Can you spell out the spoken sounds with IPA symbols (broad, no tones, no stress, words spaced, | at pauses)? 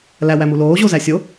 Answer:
læwæmu loːʑo zæsʲo